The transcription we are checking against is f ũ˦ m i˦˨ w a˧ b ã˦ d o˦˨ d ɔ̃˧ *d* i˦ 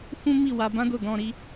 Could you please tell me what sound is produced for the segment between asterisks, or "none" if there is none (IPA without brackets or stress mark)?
ɾ